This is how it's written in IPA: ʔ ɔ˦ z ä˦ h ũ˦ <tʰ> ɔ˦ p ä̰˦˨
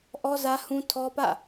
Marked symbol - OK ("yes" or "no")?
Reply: yes